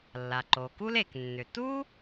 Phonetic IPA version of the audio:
lː a˩ ǃ o˩ k u˥ l e˩ k nː ʏ˩ t u˥

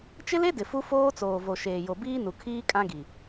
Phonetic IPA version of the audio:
t͡ʃ ɪ˦ l e˦ d ɪ˨ f u˦ f oː˦ t͡s oː˨ v o˨ ʃ eː˨ j o˨ b iː˦ n u˨ kʰ iː˦ kʼ ã˦ ɡ i˨

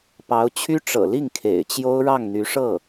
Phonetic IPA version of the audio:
p ɑ˧˥ ʊ̯ t͡ɕʰ y˥ ʈ͡ʂ ɤ̰˨˩ l i˥˩ ŋ kʰ ḛ˨˩ ɪ̯ t͡ɕ j o˥ ʊ̯ ɻ ɑ˥˩ ŋ n̪ y˧˥ ʂ ɤ˥˩

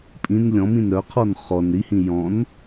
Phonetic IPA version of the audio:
pʼ ĩ n lʲ ɔ̃ m ĩ n ɾ œ qʰ ɔ n χ ɔ n ɾ i h ĩ j ɔ̃ n

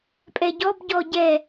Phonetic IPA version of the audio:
pʼ ɛ ɟ ɔ b ɟ ɔ ɟ ɛ

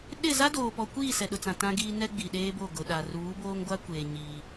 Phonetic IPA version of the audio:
ɗ ɪ˦˨ z a˦ d oː˨ p ɔ˨ kʷ iː˦˨ s ɛ˨ ɗ ʊ˨ t͡s ã˨ t ã˦ ɡ iː˦ n ɛ˦ ɡ͡b i˨ ɗ eː˦ b o˦˨ ɡ ʊ˨ ɗ a˨ r uː˨˦ b oː˦ ŋ ɡʷ a˦ kʷ eː˨ ɲ iː˦

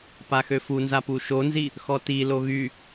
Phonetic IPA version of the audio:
p a x ø f u n z a p u ʃ o n z i | x ɔ t i l o ɣ y

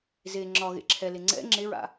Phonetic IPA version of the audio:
z e ŋ͡ǁ ɒ ɣ ḛ ǁʰ ɛ l e ŋ͡ǀ ɛ̰ ŋ͡ǁ e ɹ a̰

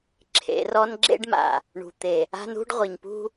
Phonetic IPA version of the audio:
ǁʰ ḛ˨˦ r ɔ˦ n ɡ͡ǁ ḛ˦ ɖ m a̰˨ | ɳ ṳ˨ t̪ e˨ | a̤˦ n ṳ˦ ɖ ʁʷ i˨ ɲ p ṳ˦

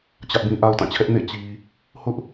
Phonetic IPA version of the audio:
t͡ɕ ä˦ ʔ b ĩ˦ ʔ a˦ ʊ̯ t ã˦˨ t͡ɕʰ ɛ˦ ʔ n ḛ˦˨ t͡ɕ i˨ | h ʊ˦ ʔ

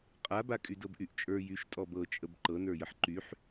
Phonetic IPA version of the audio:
qʼ a b a kʼ y d ɤ b ʔ y ʔ t͡ʃʼ ə˞ j y ʃ tʼ ɔ b ɤ t͡ʃʼ ə b ǃ ɤ n ə˞ j ə ħ ǃ y ħ

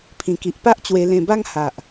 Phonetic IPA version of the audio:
pʰ ĩ˨˩ k i˨ ʔ p a˦ ʔ t͡ɕ w e˧ l ẽ˧ b a˦ ŋ h a˨ ʔ

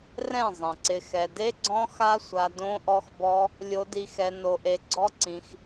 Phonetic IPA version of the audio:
r ɛ̃˦˨ zˤ ɛ̃˨ ǀ ɪ˧ x ɛ˧ d e˦ ɡ͡ǀ ɔ̃˦ x a˦ sʷ a˧ d õ˦ ʔ ɔ˦ x b ɔ˦ | lʲ o˦ d i˦ x ɛ˦ n o˧ ʔ e˧ ɡ͡ǀ ɔ˦ ǀ ĩ˧ x

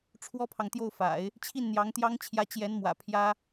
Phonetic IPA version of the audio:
ʈ͡ʂʰ w ɔ˥ pʰ ɑ˨ ŋ t̪ j o˥˩ ʊ̯ f a̰˨˩˦ ɪ̯ | t͡ɕʰ i˥˩ n n̪ j ɑ˧˥ ŋ t̪ j ɑ˥ ŋ t͡ɕʰ j ä˥ t͡ɕ j ɛ˧˥ n m w ä̰˨˩ pʰ j ä˥

